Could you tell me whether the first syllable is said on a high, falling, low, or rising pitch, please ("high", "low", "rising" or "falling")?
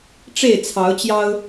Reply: falling